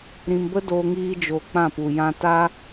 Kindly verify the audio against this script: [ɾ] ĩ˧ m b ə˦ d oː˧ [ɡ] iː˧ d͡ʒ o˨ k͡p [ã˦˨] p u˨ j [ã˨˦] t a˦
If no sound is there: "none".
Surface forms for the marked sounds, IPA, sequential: ɾ, ŋ, ã˦˨, ã˧

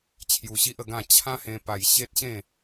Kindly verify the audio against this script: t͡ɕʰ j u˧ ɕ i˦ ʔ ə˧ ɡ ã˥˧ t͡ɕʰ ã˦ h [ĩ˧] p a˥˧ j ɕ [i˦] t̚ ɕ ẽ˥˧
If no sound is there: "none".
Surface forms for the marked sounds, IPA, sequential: ẽ˧, e˦

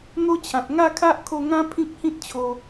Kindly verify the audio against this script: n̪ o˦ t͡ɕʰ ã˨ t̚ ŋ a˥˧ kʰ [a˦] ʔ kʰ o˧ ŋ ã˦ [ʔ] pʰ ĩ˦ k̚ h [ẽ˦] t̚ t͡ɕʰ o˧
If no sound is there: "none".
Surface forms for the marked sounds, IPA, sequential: a˦, none, ĩ˦

